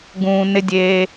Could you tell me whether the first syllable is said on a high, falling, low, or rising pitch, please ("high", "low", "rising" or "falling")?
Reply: low